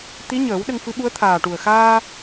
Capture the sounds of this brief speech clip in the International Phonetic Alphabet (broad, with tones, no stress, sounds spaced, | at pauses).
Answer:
t̪ i˧˥ ɲ əː˨˩˦ w ɗ ə˧ ŋ f ɨ˧˥ ɓ u˧˥ ə̯ t̪ʰ aː˨˩ ʈ u˨˩ ə̯ x aː˧